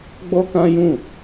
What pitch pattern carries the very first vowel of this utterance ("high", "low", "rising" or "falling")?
high